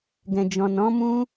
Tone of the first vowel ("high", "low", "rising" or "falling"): low